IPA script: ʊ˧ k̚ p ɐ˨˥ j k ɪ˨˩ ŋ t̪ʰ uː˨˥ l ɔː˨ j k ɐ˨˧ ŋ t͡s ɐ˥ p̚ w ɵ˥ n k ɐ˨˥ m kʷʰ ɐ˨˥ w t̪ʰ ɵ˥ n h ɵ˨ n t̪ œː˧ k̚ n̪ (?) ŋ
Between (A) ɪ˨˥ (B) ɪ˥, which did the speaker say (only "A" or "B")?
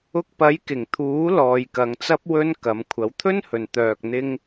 B